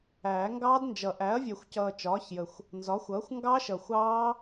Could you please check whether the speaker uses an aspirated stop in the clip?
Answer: no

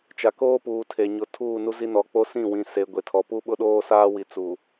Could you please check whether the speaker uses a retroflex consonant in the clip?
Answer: no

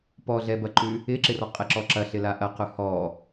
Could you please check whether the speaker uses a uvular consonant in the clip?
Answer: yes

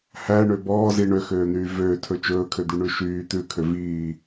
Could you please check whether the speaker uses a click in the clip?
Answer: no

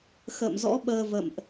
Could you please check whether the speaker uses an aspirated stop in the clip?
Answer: no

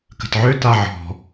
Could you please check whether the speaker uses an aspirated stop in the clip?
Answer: no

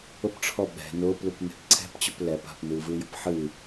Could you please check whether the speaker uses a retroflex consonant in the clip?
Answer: yes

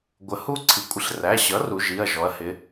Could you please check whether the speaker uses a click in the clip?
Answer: yes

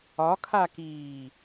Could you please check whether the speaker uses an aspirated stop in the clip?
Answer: yes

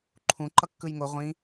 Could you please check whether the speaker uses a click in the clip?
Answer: yes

